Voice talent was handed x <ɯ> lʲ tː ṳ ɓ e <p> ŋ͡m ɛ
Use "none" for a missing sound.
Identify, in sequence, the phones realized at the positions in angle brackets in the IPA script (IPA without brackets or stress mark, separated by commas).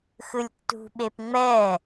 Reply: ɯ, p